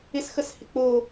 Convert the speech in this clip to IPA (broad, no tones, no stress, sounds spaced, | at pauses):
ɪ s x ə s h ɪ k͡p o